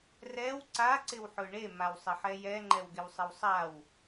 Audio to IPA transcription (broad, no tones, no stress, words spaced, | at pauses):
rɛw ǀa ǀɪwħʊɳe mawsˤɪħɛjɛ ŋ͡ǃɛwɡɪwsˤɪwsˤaw